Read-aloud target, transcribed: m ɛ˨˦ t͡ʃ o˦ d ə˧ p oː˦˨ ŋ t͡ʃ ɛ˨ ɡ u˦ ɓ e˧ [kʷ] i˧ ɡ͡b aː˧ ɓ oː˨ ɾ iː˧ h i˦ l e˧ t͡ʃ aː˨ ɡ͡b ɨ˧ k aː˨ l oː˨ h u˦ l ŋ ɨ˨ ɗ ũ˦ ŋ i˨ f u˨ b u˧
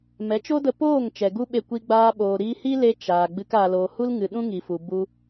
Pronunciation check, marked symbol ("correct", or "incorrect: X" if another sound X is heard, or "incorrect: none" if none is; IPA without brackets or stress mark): correct